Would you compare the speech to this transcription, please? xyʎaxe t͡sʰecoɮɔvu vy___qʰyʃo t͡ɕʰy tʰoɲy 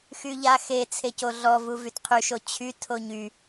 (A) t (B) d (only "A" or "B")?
A